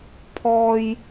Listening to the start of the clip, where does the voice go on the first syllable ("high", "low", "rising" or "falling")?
high